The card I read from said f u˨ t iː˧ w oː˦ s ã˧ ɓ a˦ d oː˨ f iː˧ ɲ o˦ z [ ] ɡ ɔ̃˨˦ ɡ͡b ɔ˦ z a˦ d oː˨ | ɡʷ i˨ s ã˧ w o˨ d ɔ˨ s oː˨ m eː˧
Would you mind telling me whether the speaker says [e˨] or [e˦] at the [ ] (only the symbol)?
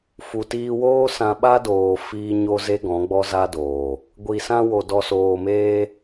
e˦